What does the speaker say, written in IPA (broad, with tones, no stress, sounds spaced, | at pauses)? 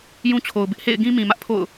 j ũ˦ t͡ɕʰ o˨ ʊ̯ b ɪ˦ ʔ h ḛ˦˨ ɪ̯ ɡ ĩ˦ m ĩ˨ m ä˦ ʔ pʰ o̰˦˨ ʊ̯